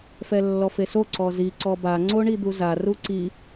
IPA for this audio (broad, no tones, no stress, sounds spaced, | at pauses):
f ɛ lː ɔ f e s o ǀ ɔ z i ǀ ɔ b a ŋ͡ǀ o ɳ i d̪ u z a r u ǀ i